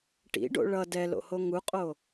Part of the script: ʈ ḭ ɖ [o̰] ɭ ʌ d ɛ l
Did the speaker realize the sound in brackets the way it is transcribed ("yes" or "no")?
yes